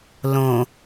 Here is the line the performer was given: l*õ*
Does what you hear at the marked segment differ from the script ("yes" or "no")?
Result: no